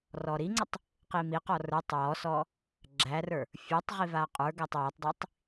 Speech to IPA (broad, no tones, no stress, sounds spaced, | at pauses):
r ɔ ɾ i ŋ͡ǀ ə tˤ | q i m i q ɔ r ə˞ tˤ w ɔ s ɔ | ɡ͡ǁ æ r ə˞ | fʲ ə˞ tˤ ʁ i v a qʼ ə˞ ɡ æ tˤ w a tˤ dˤ i tˤ